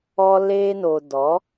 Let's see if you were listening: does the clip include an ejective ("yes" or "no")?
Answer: no